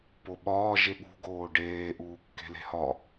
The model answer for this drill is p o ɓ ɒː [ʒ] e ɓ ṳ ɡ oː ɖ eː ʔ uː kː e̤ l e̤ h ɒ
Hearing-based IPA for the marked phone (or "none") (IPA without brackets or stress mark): ʒ